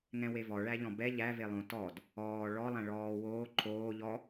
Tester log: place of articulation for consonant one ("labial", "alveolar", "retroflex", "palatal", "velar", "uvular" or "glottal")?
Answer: velar